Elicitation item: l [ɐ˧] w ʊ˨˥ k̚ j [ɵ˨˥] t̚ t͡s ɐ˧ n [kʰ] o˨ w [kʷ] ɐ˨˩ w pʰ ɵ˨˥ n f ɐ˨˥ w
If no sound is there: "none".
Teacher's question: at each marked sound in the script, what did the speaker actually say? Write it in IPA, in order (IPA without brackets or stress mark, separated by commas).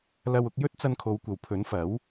ɐ˧, ɵ˥, kʰ, kʷ